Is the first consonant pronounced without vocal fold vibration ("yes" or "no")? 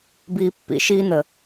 no